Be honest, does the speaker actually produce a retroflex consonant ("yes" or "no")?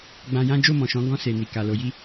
no